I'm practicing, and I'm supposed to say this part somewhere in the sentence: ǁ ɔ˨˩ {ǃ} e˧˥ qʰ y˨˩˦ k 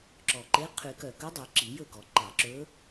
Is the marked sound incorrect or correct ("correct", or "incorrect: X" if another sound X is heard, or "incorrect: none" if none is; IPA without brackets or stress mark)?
correct